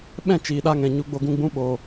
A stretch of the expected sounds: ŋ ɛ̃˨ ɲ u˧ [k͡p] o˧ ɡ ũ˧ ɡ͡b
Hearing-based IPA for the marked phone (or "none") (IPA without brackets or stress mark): ɡ͡b